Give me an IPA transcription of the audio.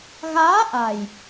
ɣ aː˧˥ ʔ a˨˩ j

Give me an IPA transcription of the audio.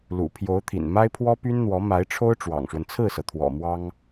l ṵ˨˩ pʰ j o˧˥ ʊ̯ t̪ʰ ḭ˨˩ n m a˥ ɪ̯ pʰ w ɔ˥ p y˥ n n̪ w ɔ˧˥ m a˧˥ ɪ̯ ʈ͡ʂʰ o˥ ʊ̯ ʈ͡ʂ w ɑ̰˨˩ ŋ ʂ w ə˦ n t͡sʰ ɹ̩˥˩ s ɤ˩ t̪ʰ w ɔ̰˨˩ m w ɑ˥ ŋ

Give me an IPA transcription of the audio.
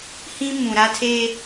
h ĩ˦ m ũ˨ ɾ a˦ tʰ e˦

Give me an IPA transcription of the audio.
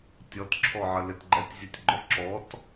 tʲ ɔ t ǁʰ ɔ ʕ ə l ɪ t ɡ͡ǃ ɛ tʲ zʲ u tʲ ɡ͡ǃ ɔ ǁ ɔ t

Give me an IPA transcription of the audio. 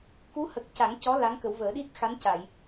k u˧˥ h ə˨˩ k̚ c a˨˩˦ ŋ c ɔ˧˥ l a˧˥ ŋ k ə˨˩˦ w v əː˨˩˦ ɗ i˦˥ t̚ x a˧˥ n c a˨˩˨ j

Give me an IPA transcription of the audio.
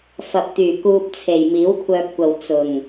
f ɐ˨ p̚ t̪ yː˨˩ k uː˧ p̚ t͡sʰ e˨ j m iː˨˥ w kʷʰ œː˧ p̚ kʷ ɐ˨ w t͡s ʊ˨˩ ŋ

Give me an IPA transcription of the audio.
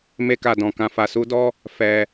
m e˦ k a˧ d ɔ̃˧ k ã˧ f a˧ s u˦ d ɔ˦ | f ɛ˧

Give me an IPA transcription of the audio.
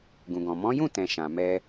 ɡ ũ˨ ɡ ɔ̃˨ m ɔ̃˨˦ j ũ˦˨ t ɛ̃˨ ʃ ã˨ m ɛ˧

